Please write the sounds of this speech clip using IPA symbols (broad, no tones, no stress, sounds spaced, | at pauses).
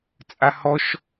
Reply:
t͡sʼ a h ɔ ʃ